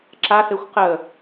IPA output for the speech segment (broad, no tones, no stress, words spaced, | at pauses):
ǁaθexʷ qə